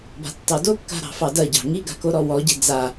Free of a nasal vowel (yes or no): yes